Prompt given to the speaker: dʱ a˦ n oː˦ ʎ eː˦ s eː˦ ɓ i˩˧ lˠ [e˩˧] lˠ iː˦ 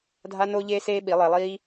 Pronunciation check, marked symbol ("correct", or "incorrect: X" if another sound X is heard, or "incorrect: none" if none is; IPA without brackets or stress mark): correct